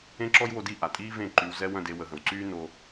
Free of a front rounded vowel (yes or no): no